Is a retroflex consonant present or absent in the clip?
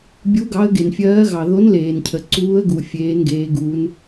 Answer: absent